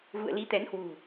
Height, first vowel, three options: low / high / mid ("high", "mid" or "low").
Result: high